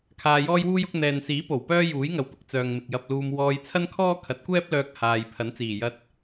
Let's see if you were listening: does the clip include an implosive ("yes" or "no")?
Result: no